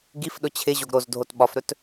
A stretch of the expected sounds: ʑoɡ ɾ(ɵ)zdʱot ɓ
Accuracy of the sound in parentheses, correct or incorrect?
incorrect